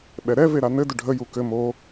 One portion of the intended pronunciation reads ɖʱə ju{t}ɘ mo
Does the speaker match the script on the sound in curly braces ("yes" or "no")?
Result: no